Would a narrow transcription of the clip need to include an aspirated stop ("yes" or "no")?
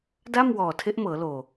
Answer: yes